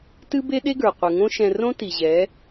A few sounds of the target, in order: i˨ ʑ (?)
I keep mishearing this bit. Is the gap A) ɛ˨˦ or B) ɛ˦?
A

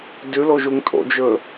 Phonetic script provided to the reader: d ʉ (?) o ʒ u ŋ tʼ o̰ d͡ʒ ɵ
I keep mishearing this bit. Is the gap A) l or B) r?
A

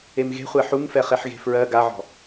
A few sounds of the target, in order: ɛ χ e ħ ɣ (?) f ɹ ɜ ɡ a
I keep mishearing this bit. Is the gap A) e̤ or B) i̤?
A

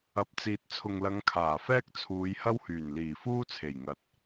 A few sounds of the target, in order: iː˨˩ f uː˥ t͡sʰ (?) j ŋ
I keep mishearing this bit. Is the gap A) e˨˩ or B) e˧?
A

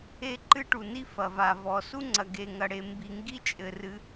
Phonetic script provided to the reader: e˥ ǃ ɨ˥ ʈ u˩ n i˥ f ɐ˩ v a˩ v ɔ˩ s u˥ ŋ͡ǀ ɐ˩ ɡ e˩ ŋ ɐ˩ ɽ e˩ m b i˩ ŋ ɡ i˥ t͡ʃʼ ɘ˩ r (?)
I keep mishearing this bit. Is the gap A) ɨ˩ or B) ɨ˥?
A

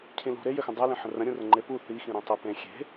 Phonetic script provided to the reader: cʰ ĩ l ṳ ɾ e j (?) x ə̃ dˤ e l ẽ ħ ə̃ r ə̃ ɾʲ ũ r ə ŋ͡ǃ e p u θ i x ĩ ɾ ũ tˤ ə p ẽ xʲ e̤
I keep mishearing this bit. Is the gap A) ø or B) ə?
A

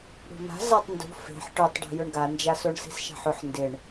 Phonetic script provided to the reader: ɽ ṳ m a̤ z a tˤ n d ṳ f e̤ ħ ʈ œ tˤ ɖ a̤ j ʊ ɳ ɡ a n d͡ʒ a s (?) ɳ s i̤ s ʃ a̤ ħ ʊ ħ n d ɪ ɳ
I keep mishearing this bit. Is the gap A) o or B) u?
A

